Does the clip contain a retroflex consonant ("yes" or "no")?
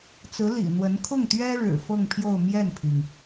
yes